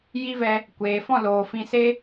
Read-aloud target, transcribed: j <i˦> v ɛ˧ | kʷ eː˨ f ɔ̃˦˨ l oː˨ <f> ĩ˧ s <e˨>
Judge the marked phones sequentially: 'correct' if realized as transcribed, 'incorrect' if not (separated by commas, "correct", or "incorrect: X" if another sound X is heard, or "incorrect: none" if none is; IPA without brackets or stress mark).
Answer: correct, correct, incorrect: e˦